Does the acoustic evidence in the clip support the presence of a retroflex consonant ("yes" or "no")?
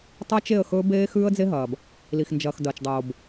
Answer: no